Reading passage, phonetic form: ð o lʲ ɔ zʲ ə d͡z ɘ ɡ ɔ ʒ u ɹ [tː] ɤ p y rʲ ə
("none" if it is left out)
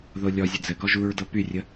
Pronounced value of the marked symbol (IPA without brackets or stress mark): d